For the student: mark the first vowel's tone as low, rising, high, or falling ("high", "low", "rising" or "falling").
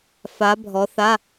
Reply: rising